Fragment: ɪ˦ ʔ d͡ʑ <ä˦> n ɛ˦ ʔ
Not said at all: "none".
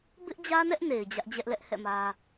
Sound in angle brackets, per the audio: ä˦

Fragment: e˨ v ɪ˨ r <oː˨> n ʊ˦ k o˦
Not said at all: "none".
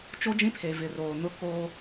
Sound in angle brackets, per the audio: oː˨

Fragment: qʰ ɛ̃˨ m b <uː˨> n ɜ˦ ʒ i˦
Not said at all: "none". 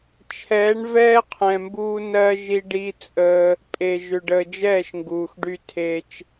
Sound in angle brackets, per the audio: uː˦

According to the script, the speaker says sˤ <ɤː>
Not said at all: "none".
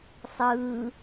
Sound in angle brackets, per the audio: ɯː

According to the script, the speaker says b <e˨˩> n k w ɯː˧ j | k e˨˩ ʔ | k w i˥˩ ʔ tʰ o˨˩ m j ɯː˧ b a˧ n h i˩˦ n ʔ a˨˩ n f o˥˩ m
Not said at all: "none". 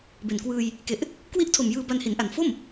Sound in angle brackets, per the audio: e˨˩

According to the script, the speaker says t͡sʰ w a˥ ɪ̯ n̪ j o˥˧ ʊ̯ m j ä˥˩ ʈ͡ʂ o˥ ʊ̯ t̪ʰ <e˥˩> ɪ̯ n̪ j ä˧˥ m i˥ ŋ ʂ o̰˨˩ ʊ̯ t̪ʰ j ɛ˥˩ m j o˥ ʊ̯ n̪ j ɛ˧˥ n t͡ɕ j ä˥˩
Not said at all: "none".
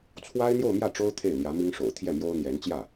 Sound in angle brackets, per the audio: e˥˩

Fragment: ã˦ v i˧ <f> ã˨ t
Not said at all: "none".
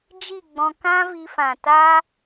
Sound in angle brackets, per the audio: f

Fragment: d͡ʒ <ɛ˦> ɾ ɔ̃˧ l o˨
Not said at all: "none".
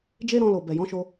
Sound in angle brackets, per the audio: e˦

